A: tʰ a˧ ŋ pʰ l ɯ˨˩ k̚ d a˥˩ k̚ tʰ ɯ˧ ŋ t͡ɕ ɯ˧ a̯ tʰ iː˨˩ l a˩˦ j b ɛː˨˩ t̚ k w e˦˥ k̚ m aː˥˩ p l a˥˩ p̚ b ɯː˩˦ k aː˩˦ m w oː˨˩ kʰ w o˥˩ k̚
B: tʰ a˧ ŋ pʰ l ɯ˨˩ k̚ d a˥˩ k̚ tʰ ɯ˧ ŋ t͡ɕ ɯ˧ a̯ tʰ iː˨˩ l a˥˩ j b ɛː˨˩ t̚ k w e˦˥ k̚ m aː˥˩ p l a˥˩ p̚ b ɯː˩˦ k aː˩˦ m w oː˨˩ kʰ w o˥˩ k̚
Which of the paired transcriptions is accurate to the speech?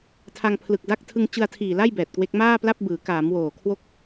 B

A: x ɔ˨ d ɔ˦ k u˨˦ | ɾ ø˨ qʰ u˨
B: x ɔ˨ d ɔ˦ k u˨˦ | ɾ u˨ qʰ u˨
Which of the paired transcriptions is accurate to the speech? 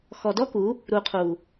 B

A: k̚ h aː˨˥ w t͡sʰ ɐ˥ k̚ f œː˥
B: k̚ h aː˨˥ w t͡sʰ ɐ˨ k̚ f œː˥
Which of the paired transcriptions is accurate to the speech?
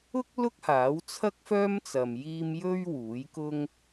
A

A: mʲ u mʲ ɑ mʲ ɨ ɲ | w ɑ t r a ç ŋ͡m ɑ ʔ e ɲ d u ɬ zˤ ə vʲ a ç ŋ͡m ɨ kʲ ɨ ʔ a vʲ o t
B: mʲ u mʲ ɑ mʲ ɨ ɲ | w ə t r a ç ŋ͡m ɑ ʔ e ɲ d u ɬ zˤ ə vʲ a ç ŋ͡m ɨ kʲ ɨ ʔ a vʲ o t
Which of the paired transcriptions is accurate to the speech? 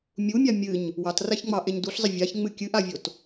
A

